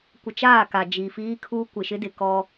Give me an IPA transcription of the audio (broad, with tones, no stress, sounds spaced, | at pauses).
kʷ ɪ˨ t͡ʃ aː˦˨ k a˨ d͡ʒ i˨ f iː˦ kʰ uː˦ kʷ ɪ˨ ʃ ɪ˦ d ɪ˨ k ɔ˦